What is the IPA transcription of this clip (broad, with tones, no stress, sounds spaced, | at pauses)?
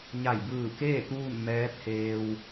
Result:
ɲ a˧˩ j b ɯː˧˩ k eː˥˨ t̪ uː˥˨ n m ɛː˧˥ t̪ʰ eː˧ w